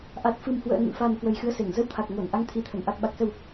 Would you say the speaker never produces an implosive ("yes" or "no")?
no